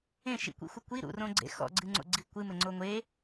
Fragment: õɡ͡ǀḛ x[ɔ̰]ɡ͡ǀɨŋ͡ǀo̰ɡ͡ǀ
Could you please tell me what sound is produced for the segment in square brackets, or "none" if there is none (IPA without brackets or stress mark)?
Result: ɔ̰